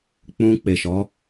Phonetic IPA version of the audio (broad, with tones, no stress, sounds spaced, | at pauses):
k͡p ũ˧ k͡p e˨ ʃ ɔ˨˦